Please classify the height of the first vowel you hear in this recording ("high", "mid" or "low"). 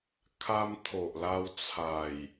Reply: low